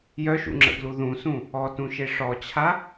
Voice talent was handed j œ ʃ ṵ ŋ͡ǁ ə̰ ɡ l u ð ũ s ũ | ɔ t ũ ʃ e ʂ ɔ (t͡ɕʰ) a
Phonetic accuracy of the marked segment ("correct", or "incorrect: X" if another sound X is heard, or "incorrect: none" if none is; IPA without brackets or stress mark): correct